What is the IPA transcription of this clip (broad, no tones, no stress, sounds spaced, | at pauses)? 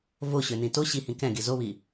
v o ɕ ø n ĩ t o ɕ i h ĩ k ɛ̃ ɡ i z o β i